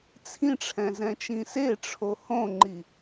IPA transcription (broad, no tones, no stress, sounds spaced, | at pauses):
t͡sʰ ĩ ʈ͡ʂʰ ɛ̃ z ɛ̃ t͡ʃ ĩ s e ʈ͡ʂʰ o h õ ŋ͡ǃ i